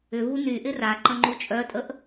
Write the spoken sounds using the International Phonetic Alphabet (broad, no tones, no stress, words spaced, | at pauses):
ʏvu nyʔɪ ra ǃə̃ŋ͡ǃut͡ʃʼœtʼəʔ